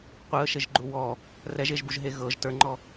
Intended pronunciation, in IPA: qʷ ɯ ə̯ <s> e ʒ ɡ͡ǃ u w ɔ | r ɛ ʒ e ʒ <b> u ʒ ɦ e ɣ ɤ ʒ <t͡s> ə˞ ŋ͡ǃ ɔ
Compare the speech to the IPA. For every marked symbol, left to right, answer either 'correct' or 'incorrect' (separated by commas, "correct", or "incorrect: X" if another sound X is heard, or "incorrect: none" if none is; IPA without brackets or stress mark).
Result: incorrect: ʃ, correct, incorrect: t